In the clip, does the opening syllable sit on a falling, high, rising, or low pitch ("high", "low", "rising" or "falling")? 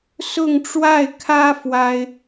falling